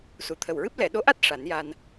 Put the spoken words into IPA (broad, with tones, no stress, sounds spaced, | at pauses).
s u˨˩˨ t̪ʰ ə˨˩ w ɹ ɨ˦˥ p̚ l ɛ˨˩˨ ɗ o˧˥ ʔ a˦˥ t̚ ʂ a˨˩˦ n j a˧ n